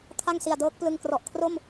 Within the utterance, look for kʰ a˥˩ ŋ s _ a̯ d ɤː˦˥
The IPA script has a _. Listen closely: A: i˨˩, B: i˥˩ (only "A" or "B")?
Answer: A